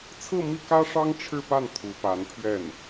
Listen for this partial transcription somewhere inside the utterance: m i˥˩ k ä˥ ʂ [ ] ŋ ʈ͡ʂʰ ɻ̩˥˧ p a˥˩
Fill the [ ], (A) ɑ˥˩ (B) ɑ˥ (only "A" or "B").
B